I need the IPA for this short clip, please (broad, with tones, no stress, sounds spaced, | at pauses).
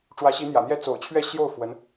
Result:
ʈ͡ʂ w ä˧˥ ɕ i˧˥ n̪ j ä̰˨˩ n̪ j ɛ˥˩ t͡s o̰˨˩ ʊ̯ t͡ɕʰ ɥ ɛ˥˧ ɕ j o˥˩ ʊ̯ f w ə˧˥ n